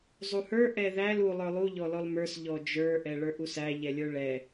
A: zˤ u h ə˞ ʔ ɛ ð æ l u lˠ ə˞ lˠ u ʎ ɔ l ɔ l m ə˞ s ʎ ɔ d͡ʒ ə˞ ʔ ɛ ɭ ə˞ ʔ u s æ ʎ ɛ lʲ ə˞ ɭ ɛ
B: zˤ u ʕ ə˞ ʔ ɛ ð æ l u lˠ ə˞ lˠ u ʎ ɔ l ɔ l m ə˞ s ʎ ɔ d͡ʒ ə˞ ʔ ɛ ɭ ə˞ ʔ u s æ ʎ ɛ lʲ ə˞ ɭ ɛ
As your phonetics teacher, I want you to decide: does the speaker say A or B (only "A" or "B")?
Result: A